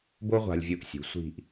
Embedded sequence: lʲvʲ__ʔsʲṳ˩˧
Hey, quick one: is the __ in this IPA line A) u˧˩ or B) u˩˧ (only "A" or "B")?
A